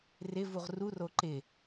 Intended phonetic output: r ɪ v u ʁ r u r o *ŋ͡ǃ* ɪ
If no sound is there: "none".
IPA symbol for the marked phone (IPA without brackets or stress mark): ǃ